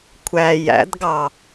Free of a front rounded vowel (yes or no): yes